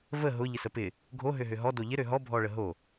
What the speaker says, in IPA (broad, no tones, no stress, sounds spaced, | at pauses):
v ə ɦ ʊ ʎ ɪ s ə p ɪ | ɡʱ o ɦ ø ɦ ø ɦ ɔ d o ʎ ɪ ɾ ø ɦ ɔ bʱ ɔ ɭ ə ɦ o